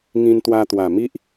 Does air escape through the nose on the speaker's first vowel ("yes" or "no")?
yes